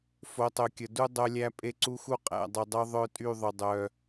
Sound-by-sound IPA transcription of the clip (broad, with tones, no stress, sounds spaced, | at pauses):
f o˨˦ tˤ ɵ˨ kʲ ə˨ d u˦ dˤ œ˦ lʲ æ˦ pʼ e˦ ǀ u˦ x u˦ qʼ æ̰˦˨ dˤ y˨ dˤ œ˦ ðˤ œ˦ tʼ y˦˨ ðˤ ɵ˨ dˤ œ˨